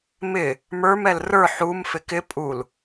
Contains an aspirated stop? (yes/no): no